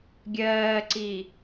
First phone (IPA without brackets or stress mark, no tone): ɡʲ